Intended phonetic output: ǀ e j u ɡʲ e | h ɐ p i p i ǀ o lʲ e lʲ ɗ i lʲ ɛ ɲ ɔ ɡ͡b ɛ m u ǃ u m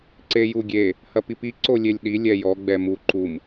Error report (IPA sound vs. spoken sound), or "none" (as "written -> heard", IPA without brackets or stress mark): ɲ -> j